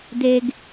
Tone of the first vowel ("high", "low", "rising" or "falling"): high